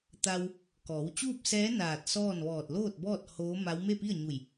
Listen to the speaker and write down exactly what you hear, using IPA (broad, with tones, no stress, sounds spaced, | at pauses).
t̪ a˧ w | k ɔː˩˧ w t͡ɕ uː˥˨ p̚ s ɛː˧˥ n aː˧˩ t̚ s ɔː˥˨ n ʋ ɔː˧˩ t̚ l oː˥˨ t̚ b ɔː˥˨ t̚ h oː˧˥ m a˧˥ w m e˥˨ p i˥˨ ə̯ ɲ u˧˩ j